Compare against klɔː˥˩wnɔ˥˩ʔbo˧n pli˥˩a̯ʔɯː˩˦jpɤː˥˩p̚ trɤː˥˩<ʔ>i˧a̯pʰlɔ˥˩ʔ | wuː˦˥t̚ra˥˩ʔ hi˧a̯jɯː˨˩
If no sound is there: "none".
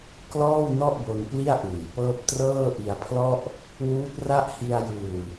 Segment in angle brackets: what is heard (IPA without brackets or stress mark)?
ʔ